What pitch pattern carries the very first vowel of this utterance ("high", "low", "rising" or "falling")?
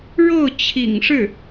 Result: falling